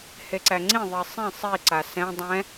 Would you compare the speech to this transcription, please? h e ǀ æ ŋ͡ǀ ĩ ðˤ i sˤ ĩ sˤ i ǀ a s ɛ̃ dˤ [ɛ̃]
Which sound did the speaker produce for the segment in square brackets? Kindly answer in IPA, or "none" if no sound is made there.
ɛ̃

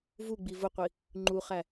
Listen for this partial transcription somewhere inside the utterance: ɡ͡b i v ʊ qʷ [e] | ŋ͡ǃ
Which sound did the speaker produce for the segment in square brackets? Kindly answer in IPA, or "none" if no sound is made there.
i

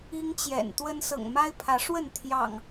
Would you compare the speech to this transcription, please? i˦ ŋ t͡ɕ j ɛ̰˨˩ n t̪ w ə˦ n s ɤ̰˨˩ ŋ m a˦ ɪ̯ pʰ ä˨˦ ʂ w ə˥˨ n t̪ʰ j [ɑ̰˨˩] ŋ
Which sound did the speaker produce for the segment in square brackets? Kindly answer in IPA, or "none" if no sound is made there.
ɑ̰˨˩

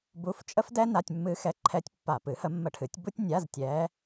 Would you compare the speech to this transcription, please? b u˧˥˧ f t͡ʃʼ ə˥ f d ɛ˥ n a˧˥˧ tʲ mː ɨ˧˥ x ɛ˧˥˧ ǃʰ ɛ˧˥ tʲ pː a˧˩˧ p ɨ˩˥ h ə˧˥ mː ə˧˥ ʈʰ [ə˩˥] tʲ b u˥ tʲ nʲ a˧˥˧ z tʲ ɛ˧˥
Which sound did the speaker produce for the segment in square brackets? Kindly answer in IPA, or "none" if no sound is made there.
ɨ˩˥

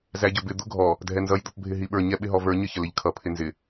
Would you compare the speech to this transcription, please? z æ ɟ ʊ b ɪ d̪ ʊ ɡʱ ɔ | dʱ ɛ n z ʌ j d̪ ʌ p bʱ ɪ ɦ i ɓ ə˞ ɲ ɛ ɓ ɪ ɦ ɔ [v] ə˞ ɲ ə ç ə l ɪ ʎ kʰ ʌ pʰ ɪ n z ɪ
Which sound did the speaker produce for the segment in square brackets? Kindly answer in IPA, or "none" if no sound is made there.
v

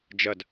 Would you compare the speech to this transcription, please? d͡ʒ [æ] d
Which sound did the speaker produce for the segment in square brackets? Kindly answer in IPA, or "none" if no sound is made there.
ɐ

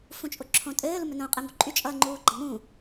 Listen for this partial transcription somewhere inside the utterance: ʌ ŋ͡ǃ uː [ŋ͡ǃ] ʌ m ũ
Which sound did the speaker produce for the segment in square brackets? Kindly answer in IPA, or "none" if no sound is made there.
ɡ͡ǃ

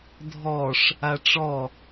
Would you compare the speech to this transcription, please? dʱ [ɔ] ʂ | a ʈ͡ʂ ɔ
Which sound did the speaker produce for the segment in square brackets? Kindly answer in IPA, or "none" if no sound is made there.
ɔ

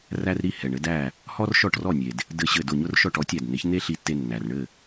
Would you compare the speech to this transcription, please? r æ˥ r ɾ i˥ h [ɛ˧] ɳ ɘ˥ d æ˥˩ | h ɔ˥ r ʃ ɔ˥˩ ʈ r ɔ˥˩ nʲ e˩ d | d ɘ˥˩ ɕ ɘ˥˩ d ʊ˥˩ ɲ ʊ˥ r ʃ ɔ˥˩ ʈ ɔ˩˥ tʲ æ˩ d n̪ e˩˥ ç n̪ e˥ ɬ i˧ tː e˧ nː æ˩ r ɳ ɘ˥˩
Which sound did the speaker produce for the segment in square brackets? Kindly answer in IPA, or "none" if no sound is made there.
ɛ˩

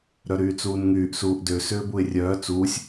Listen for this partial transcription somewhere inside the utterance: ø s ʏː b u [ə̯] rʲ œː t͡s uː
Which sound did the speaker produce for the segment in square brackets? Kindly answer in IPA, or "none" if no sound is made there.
ɪ̯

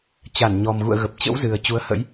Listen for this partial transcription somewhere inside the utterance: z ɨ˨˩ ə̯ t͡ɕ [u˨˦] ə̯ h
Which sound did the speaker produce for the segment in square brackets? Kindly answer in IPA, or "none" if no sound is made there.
u˨˦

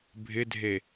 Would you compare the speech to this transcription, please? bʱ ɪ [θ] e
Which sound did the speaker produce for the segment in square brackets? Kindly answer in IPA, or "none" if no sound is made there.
dʱ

